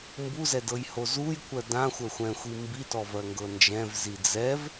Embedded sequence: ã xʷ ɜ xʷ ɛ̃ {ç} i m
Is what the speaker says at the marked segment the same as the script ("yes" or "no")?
no